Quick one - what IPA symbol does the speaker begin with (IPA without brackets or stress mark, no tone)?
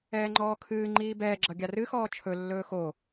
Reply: ɛː